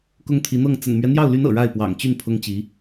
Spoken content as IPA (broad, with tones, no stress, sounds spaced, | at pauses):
k ʊ˥ ŋ t̪ʰ i˧˥ n̪ ɤ˥˩ ŋ t͡s ə̰˨˩ n m ɥ ɛ˦ n̪ j ɑ˥˩ ʊ̯ l y˧˥ n ɤ̰˨˩ ɻ a˥˩ ɪ̯ p w ɑ̰˨˩ ŋ t͡ɕ y˥˩ n pʰ ʊ˥ ŋ t͡ɕ i˧˥